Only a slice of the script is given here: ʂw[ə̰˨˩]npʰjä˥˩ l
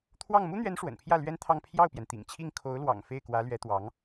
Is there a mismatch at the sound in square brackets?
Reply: no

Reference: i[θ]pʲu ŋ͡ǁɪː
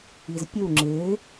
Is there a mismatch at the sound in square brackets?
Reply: yes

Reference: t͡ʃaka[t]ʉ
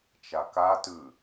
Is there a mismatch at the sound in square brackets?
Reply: no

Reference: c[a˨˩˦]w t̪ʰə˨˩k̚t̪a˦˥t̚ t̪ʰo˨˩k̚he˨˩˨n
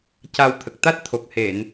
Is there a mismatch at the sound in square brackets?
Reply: yes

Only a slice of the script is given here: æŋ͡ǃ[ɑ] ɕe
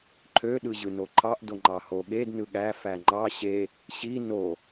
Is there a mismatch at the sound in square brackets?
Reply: no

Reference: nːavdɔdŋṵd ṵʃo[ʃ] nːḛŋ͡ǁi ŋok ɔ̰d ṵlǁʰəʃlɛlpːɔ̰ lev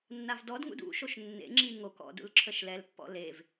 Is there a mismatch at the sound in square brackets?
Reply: no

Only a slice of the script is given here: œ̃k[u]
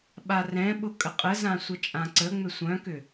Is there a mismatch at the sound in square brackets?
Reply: yes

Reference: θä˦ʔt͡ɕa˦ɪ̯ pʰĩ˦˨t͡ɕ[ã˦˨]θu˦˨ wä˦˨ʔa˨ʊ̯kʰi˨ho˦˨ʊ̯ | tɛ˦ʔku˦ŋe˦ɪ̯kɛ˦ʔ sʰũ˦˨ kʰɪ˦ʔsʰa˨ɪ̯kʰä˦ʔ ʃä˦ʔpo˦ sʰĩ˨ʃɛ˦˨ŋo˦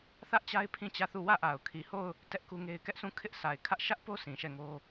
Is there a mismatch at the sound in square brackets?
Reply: yes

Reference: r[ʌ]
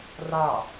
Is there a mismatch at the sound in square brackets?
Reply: yes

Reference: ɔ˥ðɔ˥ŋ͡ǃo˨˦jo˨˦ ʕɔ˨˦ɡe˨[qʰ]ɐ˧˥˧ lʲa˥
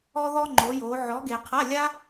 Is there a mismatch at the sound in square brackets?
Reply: no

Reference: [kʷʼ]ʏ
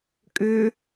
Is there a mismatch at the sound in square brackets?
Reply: yes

